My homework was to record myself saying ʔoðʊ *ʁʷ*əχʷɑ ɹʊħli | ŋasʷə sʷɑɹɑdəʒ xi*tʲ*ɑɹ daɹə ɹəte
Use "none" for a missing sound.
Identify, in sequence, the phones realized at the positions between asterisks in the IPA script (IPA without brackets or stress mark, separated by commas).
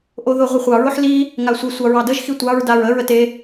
ʁʷ, tʷ